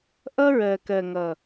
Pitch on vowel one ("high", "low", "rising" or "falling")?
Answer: high